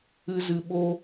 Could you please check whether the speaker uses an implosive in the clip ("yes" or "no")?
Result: yes